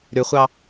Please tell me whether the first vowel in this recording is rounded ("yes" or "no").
yes